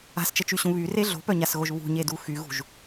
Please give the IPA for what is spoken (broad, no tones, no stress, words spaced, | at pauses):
a̤st͡ʃət͡ʃyɕũ βyre ɮo̤pœɲasɣoʒ βṳɲedu xyɣṳʒ